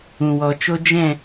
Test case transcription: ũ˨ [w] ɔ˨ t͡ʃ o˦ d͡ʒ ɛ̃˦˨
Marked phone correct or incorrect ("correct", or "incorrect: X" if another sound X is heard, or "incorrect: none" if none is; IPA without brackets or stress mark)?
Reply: correct